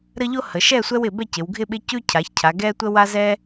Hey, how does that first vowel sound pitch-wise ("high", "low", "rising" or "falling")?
high